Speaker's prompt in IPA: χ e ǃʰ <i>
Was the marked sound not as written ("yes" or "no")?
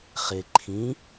yes